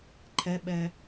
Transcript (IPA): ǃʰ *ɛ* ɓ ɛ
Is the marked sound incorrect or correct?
correct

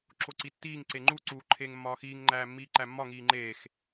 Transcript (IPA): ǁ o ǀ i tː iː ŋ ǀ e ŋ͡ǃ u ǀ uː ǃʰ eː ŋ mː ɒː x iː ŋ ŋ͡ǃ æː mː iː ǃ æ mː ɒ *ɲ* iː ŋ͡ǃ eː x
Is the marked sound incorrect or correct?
incorrect: ŋ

